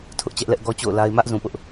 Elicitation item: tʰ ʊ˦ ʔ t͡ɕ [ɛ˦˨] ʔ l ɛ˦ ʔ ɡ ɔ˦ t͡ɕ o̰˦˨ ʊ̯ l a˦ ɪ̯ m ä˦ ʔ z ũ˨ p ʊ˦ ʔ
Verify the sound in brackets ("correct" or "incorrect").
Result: incorrect